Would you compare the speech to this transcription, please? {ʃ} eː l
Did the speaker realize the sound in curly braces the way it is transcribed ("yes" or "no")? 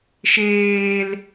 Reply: yes